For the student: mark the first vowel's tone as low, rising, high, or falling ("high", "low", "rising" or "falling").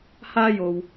high